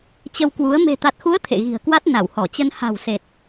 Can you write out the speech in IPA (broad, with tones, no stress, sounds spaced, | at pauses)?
t͡ɕ ə˧ w k w u˨˦ ə̯ m e̤˨˩ t̪ a˨˩ t̚ x u˨˦ ə̯ t̪ʰ ḛ˧˨ ɣ i̤˨˩ ə̯ k w a˦˥ t̚ n a˧˩ w h ɔ˧˩ t͡ɕ ə˧ n h a̤˨˩ w s e˨˩ t̚